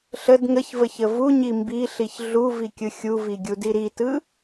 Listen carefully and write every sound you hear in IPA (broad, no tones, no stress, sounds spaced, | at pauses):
ɬ ə d ŋ ə ç v ə ç ə v u ɲ i m b i ɬ i ç ɮ u v i kʲ ɯ xʲ u v i ɡʲ u d i ɾ i t ɯ